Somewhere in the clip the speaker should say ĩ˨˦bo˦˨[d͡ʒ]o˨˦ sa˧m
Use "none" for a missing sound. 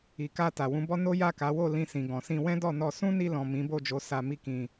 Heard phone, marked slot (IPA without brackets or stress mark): d͡ʒ